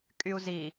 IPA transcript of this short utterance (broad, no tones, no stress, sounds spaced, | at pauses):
kʼ y u̯ z i